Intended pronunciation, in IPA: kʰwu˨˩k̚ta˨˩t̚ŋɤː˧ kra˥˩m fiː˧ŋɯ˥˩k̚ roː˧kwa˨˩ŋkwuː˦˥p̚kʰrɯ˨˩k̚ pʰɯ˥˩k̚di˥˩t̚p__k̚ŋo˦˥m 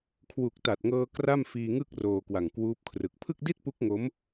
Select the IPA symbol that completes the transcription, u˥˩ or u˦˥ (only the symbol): u˦˥